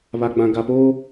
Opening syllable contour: low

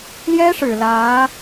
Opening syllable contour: high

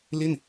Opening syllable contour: falling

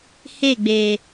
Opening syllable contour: falling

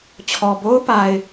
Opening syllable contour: low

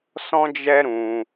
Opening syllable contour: high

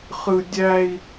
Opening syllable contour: high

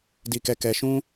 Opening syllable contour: low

